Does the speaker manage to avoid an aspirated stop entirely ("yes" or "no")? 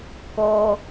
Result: yes